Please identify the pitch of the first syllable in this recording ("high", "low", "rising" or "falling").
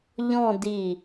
falling